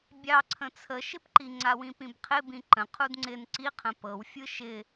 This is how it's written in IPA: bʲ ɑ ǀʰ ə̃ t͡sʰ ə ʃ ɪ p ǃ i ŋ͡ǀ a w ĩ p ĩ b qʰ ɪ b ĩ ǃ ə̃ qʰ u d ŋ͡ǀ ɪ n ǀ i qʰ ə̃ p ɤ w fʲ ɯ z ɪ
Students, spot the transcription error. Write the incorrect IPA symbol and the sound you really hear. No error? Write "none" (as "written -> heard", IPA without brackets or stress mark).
z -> ʃ